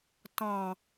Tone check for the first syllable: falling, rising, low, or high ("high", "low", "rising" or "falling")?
low